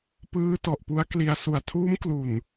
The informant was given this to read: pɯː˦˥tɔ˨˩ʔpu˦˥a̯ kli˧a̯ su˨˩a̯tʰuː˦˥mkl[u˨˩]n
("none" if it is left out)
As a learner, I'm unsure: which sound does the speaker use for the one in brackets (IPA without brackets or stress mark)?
u˨˩